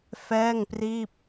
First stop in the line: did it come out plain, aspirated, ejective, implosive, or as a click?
plain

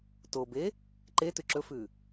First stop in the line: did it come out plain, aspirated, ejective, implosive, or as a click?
plain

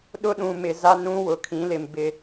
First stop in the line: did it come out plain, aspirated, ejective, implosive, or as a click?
implosive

